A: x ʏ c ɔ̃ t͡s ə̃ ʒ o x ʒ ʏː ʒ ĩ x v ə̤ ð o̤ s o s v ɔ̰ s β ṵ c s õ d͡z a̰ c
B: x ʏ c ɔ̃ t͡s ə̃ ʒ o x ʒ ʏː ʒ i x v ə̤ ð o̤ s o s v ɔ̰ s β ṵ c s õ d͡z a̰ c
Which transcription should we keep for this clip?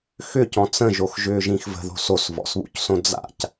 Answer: A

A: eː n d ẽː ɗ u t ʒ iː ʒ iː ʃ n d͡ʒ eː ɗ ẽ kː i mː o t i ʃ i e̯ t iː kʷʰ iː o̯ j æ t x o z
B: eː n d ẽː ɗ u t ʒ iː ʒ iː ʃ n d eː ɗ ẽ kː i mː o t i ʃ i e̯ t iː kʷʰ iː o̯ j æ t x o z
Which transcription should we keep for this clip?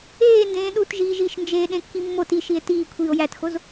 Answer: A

